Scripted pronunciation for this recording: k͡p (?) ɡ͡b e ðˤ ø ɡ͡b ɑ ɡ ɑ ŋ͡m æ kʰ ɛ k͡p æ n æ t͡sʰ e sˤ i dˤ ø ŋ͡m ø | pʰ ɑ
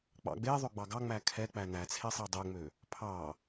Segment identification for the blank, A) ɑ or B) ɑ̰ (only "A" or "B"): B